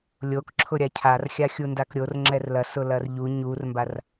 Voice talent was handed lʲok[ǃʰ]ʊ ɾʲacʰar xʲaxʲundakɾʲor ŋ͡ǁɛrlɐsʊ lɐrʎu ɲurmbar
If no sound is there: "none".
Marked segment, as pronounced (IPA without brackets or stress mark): ǁʰ